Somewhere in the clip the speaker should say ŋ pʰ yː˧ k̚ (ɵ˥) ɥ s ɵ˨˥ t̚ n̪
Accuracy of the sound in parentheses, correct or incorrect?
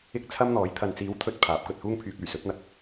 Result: incorrect: ɵ˨˩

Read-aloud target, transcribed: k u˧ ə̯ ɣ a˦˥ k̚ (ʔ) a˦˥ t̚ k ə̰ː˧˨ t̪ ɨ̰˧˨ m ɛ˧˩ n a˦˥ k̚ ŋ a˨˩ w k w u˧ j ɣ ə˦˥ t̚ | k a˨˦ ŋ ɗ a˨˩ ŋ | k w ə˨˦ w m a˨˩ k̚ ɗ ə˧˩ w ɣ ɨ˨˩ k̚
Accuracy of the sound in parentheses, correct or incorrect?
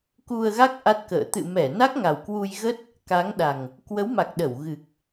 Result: correct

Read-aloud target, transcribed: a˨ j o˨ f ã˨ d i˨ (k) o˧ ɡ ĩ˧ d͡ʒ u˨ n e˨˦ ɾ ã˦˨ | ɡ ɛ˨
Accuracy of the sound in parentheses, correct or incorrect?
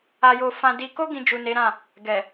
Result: correct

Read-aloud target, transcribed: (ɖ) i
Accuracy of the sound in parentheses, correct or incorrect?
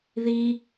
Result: incorrect: ð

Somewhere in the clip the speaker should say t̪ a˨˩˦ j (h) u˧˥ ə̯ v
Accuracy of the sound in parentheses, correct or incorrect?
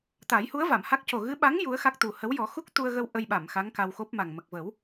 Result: correct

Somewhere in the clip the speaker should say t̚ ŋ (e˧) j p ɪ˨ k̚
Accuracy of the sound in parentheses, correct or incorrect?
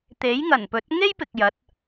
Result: incorrect: e˥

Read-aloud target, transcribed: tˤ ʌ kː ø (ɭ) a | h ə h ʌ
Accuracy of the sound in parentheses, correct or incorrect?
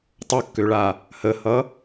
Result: correct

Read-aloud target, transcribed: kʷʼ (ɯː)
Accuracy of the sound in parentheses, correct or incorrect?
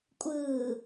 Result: correct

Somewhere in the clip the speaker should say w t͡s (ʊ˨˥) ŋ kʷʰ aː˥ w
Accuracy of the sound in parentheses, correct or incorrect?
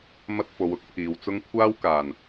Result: incorrect: ʊ˥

